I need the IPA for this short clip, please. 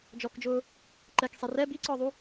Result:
d͡ʒɔkd͡ʒʊː | ǃɛksˤɛ rɛ biǀɔːðˤu

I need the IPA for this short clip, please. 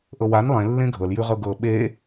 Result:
ʔɤwan lˠẽ lːẽɡʱɤl jʉʁɤɡɤ ɓe

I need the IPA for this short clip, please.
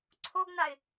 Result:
ǀʰoɡnaɪ̯

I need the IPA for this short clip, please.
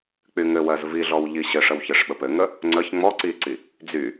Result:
k͡pyŋɘwɜz viɮɔw ʎiɕɘʂəw çɘʂɓəpɘŋə | ŋ͡ǀəç ŋ͡mɔ ǀiǀi | d͡zy

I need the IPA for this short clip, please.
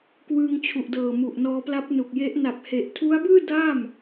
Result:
kwɯː˧ŋt͡ɕʰu˨˩ʔdɤː˨˩ mu˨˩ʔnɔː˧pla˦˥p̚ nu˨˩k̚je˦˥ʔ na˨˩p̚he˨˩ʔtʰu˦˥a̯bɯː˥˩ da˥˩m

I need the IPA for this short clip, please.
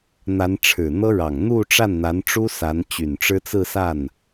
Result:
n̪a˧˥nʈ͡ʂʰɻ̩˨˩ n̪ɤ˥ɻɑ˨˩ŋ n̪u˥˧ʈ͡ʂa˥˩nn̪a˧˥nʈ͡ʂu˥ sa˧˥nt͡ɕy˨˩nʈ͡ʂɻ̩˥t͡sɹ̩˥˧ sa˥˩n

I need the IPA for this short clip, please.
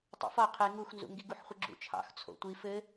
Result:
tˤo̰fɒ qʰe ŋuxnzṵ ŋɡiɡuħχʷɘɡ͡ǁṵ t͡ʃʰɑ̰x t͡sʰo̰tʷi fɘ

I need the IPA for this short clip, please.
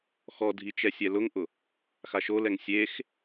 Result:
xɔdʱi t͡ʃɛsʲɛlʊŋʔʊ | xaʃolɛŋ sʲex

